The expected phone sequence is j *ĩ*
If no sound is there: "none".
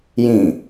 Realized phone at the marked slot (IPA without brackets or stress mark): ĩ